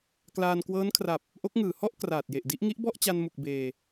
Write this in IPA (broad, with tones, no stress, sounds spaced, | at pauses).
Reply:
k l aː˧ n k w ɤː˦˥ n kʰ r a˨˩ p̚ | ʔ o˦˥ k̚ ŋ ɯː˨˩ h ɔ˥˩ ʔ k r aː˨˩ t̚ j e˨˩ ʔ d i˦˥ ʔ ŋ i˦˥ ʔ b ɔ˥˩ ʔ t͡ɕ a˧ n m u˨˩ k̚ b eː˧